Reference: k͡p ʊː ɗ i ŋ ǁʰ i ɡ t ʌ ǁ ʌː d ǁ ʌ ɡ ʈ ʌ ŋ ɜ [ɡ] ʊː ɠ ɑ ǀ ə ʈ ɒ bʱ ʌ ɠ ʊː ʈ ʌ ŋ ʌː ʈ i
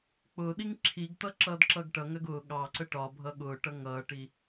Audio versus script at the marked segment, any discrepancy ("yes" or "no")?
no